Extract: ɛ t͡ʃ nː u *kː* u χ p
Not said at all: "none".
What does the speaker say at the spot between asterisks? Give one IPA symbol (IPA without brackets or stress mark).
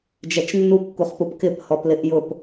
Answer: kː